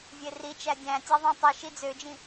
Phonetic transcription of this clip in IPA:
vʲerit͡ʃæ dʲæ̃tʲæ ðˤĩtˤiʃi d͡zød͡ʒĩ

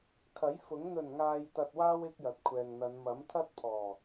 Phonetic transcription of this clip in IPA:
kʰɐ˨˥jfʊ˨˥ŋ n̪ɵ˨˩nŋaː˨jt̪ɐ˨t̚waː˧w ɪ˥k̚jɐ˨t̚kʷʰɛː˨ŋn̪ɐ˨˧n mɐ˨˥mt̪ʰɐ˥t̚pʰɔː˨˩

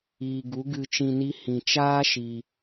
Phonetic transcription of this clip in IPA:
iː˨ɡu˨˦ɡɨ˧ t͡ʃĩ˧ni˦ hĩ˨t͡ʃaː˦ ʃi˧

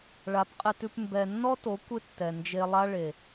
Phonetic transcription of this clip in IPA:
ɭa˨˦pqʼɪ˧tʉ˧p mbɛ˨nːɔ˦to˨˦ kʷɪ˦tːɛ˨ nd͡ʒe˧lˠa˦ ɭe˨

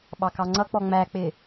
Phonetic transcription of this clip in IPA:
ɓɑkɑŋ͡ǀʌk͡pɔ ŋ͡mæk͡pɪ

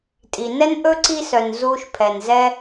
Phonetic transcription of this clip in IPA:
tʼi˨nɛ˦nʔɵ˦ ǀi˧sœ˨n zuː˧ʃ pʰɛ˨nzɛ˧

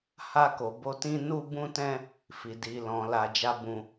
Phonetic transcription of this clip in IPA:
ha˧ko˨bo˧ tĩ˧nu˧bũ˧tɛ̃˧ | fi˨ di˨lɔ̃˨ la˧d͡ʒa˦bũ˧

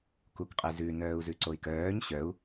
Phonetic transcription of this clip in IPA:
kukqʼezʉ nœːu̯zʉǀoi̯kœːɲ ɕœu̯

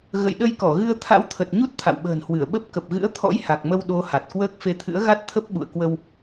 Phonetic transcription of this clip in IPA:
ɣə̰˧˨jɗə˧jkɔ˧˩ɣɨ˧ə̯ t̪ʰa̰˧˥wt̪ʰə˨˩t̚ɲu˦˥t̚ t̪ʰa̰˧˨wɓə̤ː˨˩nhwɨ˧˩ə̯ɓə˦˥p̚ kə˨˩p̚ɣɨ̰˧˥ə̯ t̪ʰɔ̰˧˥jha˨˩k̚mə˧w ɗo˨˦ ha˨˩t̚kwəː˦˥k̚ fe˧t̪ʰɨ̰˧˥ə̯ɣa˦˥t̚ t̪ʰə˦˥p̚ɓṵ˧˨ə̯kwə˧w

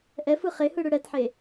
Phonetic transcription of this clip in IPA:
ʔɛfɯ χehɯ ɽɯɽɛtħe

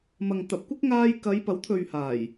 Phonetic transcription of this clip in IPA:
mɐ˨ŋt̪ɐ˨p̚kʷɪ˥k̚ŋaː˧j kɐ˨˧j pɐ˨˥wt̪ʰɵ˨ɥhaː˨˩j

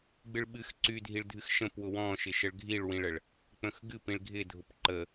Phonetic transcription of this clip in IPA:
ɡ͡bɨɭɓɨx ǀydʱiɭ dʱɨxʃə̃p wʊwɔ̃ʃɪʃəɭ ɡʱiɭwĩɭəɭ | k͡pə̃xɡɨ pĩɭɡʱɪdʱʊp ǃə

